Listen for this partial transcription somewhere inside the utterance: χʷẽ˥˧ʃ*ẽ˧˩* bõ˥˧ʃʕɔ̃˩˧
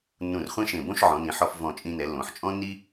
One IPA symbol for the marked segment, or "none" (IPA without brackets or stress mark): ẽ˧˩